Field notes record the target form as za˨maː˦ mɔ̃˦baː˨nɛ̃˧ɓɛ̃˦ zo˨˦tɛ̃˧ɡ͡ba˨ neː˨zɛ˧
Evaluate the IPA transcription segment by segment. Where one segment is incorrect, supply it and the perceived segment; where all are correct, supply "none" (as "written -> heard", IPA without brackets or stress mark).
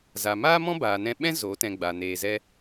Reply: none